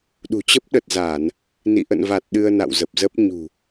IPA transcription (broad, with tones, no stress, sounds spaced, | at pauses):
ɗ ṳ˨˩ t͡ɕ ə˦˥ p̚ ɗ ə˨˩ t̚ z aː˧˩˨ n | n ḭ˧˨ ʔ ə̰˧˨ n v a˨˩ t̚ ɗ ɨ˧ ə̯ n a̰˧˨ w z ə˨˩ p̚ z ə˦˥ p̚ ɲ ṳ˨˩